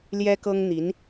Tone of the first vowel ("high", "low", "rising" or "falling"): high